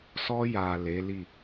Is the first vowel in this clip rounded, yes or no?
yes